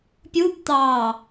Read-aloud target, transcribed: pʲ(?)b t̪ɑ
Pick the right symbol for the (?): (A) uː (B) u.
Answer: B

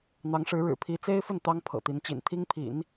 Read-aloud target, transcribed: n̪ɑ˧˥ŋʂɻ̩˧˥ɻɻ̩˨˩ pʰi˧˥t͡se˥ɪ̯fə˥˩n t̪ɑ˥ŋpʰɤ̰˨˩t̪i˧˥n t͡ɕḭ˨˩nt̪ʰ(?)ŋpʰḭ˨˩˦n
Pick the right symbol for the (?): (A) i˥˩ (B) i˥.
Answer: B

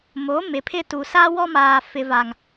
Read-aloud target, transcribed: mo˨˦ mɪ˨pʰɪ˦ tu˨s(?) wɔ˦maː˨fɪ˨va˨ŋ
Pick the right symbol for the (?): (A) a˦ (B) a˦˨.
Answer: A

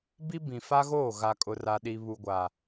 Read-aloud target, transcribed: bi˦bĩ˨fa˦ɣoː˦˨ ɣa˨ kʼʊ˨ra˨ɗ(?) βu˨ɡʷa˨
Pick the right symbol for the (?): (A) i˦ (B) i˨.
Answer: B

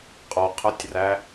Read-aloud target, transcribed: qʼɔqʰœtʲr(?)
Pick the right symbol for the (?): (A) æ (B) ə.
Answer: A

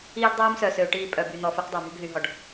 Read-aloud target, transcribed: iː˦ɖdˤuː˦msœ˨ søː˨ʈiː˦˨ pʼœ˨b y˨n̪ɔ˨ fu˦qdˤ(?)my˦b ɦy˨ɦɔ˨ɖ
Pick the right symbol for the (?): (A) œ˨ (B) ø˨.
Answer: A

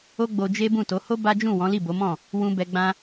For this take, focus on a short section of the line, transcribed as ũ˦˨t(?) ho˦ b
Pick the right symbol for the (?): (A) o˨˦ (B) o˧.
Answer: A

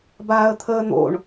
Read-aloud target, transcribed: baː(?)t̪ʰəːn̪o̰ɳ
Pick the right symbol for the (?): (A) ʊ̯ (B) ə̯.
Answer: B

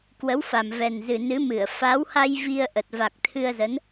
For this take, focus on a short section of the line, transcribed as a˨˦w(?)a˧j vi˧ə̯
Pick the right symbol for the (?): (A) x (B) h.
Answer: B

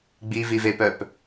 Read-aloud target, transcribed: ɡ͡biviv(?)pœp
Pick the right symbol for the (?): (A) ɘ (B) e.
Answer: B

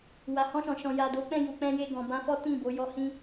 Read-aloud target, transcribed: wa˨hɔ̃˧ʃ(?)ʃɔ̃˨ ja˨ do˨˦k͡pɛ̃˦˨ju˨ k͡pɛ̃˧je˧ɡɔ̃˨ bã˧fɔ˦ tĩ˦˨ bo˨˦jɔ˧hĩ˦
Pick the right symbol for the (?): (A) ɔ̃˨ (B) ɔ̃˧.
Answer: A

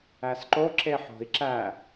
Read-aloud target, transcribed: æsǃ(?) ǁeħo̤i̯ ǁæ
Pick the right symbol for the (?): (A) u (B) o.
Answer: B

